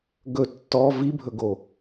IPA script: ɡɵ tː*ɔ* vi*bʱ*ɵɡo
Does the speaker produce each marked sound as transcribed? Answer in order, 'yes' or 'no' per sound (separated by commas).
yes, yes